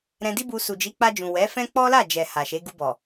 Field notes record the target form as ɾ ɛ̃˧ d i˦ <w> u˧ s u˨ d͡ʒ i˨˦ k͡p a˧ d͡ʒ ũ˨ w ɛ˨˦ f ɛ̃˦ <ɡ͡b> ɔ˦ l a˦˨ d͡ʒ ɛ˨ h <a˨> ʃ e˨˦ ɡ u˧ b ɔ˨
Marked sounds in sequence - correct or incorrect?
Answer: incorrect: b, incorrect: k͡p, correct

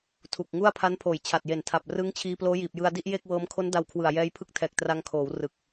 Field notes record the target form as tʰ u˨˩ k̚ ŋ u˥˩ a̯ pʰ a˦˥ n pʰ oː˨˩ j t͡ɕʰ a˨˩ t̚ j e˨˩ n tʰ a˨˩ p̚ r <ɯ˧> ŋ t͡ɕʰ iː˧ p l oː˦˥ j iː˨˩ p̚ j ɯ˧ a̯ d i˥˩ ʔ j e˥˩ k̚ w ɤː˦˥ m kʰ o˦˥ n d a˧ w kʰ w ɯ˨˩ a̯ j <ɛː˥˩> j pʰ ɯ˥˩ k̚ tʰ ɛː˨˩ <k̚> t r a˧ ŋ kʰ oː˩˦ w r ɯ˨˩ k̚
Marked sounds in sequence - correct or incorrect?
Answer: incorrect: ɯ˦˥, incorrect: ɛː˦˥, correct

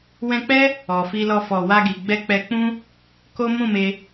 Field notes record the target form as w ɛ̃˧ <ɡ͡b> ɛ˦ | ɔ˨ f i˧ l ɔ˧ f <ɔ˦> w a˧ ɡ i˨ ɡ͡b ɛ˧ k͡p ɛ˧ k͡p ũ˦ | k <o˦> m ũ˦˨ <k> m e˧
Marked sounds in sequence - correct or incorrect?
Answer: incorrect: k͡p, incorrect: ɔ˨, correct, incorrect: none

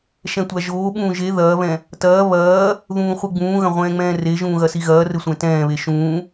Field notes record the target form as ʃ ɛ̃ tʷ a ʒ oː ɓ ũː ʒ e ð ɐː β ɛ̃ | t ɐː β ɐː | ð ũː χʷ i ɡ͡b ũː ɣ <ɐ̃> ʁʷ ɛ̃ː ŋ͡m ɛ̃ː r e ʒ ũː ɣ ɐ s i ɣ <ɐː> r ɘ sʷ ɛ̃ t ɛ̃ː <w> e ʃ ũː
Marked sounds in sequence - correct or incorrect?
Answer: correct, correct, incorrect: β

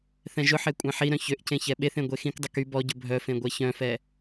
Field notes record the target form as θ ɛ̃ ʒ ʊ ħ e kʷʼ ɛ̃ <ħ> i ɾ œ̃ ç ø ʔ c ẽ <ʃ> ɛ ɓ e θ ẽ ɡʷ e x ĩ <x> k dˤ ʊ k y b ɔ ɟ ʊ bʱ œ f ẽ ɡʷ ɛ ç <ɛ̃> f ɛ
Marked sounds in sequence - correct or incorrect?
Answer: correct, incorrect: ç, incorrect: none, incorrect: œ̃

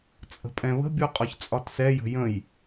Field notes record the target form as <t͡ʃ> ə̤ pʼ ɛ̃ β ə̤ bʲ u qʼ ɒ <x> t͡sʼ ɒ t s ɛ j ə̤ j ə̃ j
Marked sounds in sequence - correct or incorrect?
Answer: incorrect: t͡sʼ, incorrect: ç

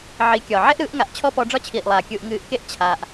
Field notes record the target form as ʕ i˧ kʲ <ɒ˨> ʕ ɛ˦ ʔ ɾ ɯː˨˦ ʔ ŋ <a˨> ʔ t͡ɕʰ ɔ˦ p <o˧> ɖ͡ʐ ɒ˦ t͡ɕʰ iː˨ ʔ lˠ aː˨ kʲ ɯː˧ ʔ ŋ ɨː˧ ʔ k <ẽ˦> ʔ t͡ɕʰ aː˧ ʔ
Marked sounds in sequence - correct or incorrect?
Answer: correct, correct, incorrect: ɔ˧, incorrect: e˦

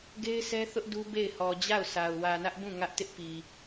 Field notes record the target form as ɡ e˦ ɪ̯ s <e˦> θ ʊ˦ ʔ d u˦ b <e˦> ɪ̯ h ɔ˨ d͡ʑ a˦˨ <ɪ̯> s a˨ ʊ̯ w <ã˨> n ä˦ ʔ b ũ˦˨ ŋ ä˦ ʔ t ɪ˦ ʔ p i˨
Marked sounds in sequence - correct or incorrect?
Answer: incorrect: ɛ˦, incorrect: e˦˨, incorrect: ʊ̯, incorrect: ä˨

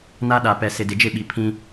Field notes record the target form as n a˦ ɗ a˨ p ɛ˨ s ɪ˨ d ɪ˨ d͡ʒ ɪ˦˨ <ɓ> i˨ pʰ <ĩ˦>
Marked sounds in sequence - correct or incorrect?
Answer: correct, correct

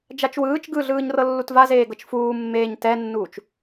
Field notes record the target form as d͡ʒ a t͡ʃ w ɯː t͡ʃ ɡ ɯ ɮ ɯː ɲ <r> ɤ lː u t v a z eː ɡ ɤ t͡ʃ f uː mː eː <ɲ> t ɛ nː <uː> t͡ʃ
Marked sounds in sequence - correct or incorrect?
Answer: correct, correct, correct

